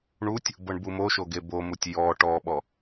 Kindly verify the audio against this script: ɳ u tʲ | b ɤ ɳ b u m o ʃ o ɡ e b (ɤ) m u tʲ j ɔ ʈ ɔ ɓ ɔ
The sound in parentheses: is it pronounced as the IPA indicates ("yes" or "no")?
no